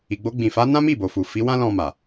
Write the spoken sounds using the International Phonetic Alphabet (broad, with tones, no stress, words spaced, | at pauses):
i˨ɡ͡bo˧ɡ͡bĩ˨fa˨˦ nã˦mi˦˨bo˨fu˨ fi˨˦ wã˦lɔ̃˧ma˨